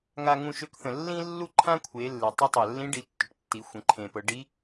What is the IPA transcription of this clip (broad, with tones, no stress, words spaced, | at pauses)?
ŋa˧ŋũ˧ʃø˧˥kθə̃˩ lːĩ˥lːu˥ǃʰã˥kʷʰe˩˧ lːe˩ tˤe˧˥tˤa˩ lːĩ˧˥ɖi˩˧ tːʏ˩ʈtːi˩˧ xʷẽ˩˧ǃʰẽ˩pɤ˩˧ ɖi˧˥